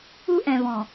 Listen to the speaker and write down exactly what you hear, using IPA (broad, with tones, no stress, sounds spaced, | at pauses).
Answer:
u˦ ʔ ɛ̃˨ v ɔ̃˨